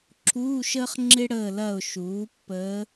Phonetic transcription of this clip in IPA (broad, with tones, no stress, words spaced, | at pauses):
ǁʰuː˧˥˧ʃəː˥χŋ͡ǁɪ˥ ɽəː˦˨lɐ˦˨ʊ̯ ʃuː˩˥ pːəː˧˥